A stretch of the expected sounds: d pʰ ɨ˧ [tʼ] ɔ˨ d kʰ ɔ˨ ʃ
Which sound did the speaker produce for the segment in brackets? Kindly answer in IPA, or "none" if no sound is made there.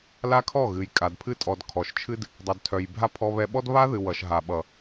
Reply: tʼ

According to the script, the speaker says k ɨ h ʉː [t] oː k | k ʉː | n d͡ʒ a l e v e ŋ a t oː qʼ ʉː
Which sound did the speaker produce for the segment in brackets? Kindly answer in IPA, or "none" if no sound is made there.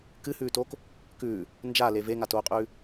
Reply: t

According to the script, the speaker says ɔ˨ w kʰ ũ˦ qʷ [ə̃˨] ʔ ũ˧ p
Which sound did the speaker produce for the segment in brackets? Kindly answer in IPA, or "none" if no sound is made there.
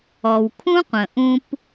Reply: ə̃˨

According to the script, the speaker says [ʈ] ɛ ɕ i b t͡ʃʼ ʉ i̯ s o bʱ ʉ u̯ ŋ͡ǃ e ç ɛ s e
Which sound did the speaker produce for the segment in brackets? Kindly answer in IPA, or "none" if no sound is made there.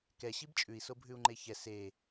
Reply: k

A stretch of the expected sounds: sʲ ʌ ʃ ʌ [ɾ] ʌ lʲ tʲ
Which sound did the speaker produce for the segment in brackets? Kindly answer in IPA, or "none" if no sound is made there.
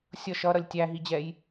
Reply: ɾ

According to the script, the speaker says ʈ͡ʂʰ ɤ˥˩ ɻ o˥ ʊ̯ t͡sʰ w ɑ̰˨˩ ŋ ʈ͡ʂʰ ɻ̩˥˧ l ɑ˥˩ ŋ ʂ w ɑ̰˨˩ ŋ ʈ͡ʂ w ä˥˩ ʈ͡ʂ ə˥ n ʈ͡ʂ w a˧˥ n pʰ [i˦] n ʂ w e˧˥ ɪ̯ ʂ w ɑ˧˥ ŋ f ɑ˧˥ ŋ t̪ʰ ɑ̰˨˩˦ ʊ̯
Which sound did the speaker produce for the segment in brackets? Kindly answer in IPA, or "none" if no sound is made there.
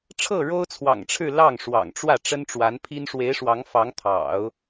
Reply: i˥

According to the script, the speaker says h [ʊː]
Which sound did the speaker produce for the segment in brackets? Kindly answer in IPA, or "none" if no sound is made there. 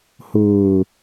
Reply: ʊː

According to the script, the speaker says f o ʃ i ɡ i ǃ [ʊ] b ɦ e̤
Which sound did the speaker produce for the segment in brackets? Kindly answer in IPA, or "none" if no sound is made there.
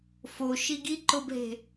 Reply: ʊ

